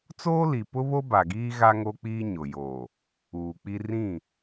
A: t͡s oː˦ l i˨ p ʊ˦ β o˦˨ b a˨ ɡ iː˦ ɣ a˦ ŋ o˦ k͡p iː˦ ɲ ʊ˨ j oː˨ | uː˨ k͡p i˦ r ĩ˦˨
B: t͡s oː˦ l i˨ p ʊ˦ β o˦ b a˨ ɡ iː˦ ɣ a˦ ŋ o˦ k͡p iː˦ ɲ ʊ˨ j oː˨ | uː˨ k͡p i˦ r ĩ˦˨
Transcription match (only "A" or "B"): B